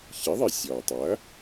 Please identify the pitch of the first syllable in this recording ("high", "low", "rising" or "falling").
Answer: rising